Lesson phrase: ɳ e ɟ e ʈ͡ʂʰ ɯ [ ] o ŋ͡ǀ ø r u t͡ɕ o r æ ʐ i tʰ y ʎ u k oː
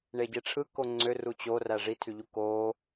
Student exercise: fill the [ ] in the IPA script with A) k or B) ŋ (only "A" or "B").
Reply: A